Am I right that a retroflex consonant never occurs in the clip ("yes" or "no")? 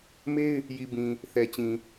yes